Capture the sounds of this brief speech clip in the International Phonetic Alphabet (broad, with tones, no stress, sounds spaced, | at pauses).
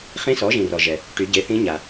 χ ĩ˧˥ s ɔ˩˥ ʒ ĩ˨ r ɔ˨ ʒ ɛ˨ | ʈ y˨˩˦ ɟ e˩˥ θ ĩ˧˥ ɲ a˨